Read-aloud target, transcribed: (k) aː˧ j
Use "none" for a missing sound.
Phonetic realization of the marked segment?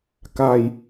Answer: k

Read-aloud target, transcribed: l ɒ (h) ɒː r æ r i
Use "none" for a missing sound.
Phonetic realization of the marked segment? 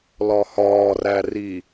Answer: h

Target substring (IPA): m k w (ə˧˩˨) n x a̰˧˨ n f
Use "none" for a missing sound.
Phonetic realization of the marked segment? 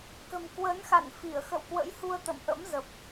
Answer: ə˨˦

